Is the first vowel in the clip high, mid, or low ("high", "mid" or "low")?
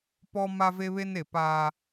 mid